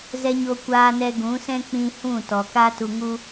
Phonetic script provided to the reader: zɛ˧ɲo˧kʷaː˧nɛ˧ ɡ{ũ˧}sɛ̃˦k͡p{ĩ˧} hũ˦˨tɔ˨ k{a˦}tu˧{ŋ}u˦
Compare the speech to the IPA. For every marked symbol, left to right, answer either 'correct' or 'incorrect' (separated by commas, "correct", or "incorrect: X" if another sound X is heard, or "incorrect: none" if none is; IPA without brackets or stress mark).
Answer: incorrect: ũ˨˦, correct, correct, correct